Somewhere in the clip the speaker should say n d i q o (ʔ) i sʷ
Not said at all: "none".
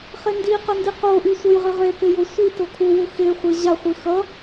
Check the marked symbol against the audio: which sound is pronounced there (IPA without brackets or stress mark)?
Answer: ʔ